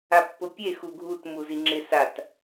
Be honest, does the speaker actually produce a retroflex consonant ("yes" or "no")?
no